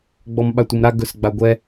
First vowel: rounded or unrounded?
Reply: rounded